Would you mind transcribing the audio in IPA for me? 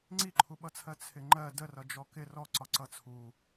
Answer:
ŋ͡ǀiǃʰuɓʌt͡sʰɜ t͡sʰɪŋ͡ǃɜ dərʌd͡ʒɔ kɪ rɔǀɒ ǀʌt͡sʰu

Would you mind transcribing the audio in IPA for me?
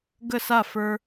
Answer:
ɡə˥˩sa˥˩ fə˞˧

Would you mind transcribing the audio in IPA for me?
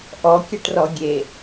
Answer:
ʔɔkʲɐʈrɔ ɡʲe

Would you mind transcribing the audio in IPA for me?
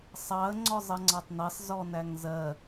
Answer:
sˤɑə̯ ŋ͡ǀɔzˤʌŋ͡ǀɑtˤnɜsˤ zɔnæŋzɜ

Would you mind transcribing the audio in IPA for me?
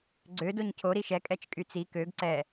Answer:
ɡ͡ǀø doɲcʰo ɾiʃɛ kʼɛt͡ʃkʼyt͡si køɡ ǀɛ

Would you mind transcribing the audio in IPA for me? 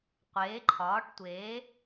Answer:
qʷeː˩˥ ǃʰɒː˩˥ʈtʷeː˩˥

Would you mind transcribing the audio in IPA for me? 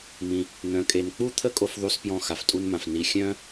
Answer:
mĩ˩ | n̪œ̃˩kʼe˩n k͡pu˥t̪ʰə˥ kʼo˧fðˤu˧spjɔ̃˧ xa˩ftʼu˧nmã˩f ni˩ xʲœ̃˥

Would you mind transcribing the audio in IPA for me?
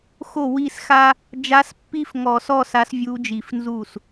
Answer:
xo˥˩wi˥˧sxa˥ | d͡ʒa˧˥spːi˥fŋɔ˧˩˧sɔ˥˧ sa˧˥svʲu˧˥d͡ʒi˧˩˧fnzu˥˩s

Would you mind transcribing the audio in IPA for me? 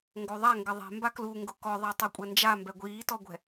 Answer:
ŋɡoðˤa ŋɡɪðˤɛ̤ mbaklu ŋɡʊkɔðˤa tˤukʷʼɛnd͡ʒa mbɛɡʷiːtɔɡʷɛ̤

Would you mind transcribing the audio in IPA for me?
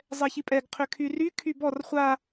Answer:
zˤɛçipʼɛɡ qʰʏkʰyry kʰybɔr χʷa

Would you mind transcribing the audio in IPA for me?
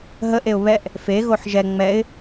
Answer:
ɦəʔeʊ̯ βɛʔ | feɣoħ ʒɛ ŋ͡mɛɪ̯

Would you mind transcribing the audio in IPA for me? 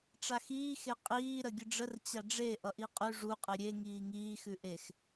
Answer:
ʈ͡ʂaxiː xeqʼiː ɾəɡʲəɖ͡ʐər t͡ɕaɖ͡ʐe ʔʌʔiqʼʉ ʐu qʼeɾʲe ŋiːŋiː xʉʔex

